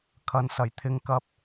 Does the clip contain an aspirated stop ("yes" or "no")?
yes